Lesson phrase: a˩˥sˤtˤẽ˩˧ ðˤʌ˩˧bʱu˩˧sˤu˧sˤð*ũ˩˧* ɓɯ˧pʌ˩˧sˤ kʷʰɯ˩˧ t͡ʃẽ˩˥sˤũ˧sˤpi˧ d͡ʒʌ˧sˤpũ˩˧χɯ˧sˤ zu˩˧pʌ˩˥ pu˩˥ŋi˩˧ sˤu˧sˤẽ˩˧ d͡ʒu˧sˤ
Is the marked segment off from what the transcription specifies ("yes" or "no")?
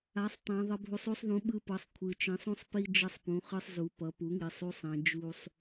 yes